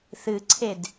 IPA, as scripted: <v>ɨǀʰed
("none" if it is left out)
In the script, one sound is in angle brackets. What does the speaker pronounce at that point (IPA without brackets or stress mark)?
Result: θ